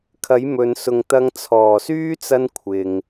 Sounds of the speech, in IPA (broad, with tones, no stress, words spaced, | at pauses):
kʰɐ˨˧jmɵ˨nsʊ˨ŋ t̪ɐ˧ŋt͡sʰɔː˨˩syː˥t͡sɐ˧n kʷʰɪ˨ŋ